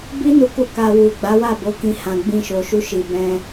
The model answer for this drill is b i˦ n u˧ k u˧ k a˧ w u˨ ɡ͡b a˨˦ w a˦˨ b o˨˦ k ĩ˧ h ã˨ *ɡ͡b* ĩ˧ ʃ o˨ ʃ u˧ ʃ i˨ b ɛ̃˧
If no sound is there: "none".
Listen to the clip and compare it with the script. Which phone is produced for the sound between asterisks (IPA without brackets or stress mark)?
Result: ɡ͡b